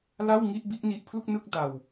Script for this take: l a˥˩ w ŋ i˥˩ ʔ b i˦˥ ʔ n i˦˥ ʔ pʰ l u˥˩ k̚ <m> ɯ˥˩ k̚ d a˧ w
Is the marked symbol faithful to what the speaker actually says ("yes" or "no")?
no